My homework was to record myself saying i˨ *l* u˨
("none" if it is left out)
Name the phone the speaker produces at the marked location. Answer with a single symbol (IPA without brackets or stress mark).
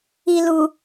l